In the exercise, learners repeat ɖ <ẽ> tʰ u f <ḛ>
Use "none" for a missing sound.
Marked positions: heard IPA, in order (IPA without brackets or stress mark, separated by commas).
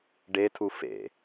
e, ḛ